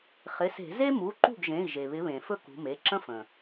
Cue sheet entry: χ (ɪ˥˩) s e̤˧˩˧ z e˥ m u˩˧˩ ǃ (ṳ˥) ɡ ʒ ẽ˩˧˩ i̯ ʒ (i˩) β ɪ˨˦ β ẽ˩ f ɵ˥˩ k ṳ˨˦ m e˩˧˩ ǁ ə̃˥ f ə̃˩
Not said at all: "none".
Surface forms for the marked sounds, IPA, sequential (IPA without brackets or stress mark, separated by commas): ɪ˩˧˩, ṳ˥˩, e˩